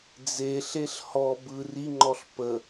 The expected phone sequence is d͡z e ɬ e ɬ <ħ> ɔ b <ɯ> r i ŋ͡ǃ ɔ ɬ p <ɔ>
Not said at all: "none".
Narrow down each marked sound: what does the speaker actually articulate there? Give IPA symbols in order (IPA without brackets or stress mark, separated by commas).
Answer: h, ɯ, ə